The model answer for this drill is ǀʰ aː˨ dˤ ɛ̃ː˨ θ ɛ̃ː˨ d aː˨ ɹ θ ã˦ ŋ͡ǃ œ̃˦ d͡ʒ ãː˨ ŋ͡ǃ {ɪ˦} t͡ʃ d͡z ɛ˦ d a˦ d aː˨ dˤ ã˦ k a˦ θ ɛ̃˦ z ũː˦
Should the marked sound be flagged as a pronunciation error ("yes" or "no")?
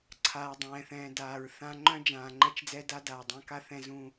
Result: yes